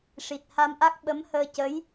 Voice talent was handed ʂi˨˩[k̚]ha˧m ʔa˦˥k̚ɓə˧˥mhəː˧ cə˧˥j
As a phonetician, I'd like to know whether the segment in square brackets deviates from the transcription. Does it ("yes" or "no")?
yes